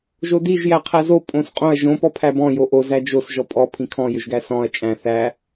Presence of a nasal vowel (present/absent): present